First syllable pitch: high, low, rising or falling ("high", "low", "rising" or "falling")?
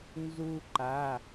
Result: high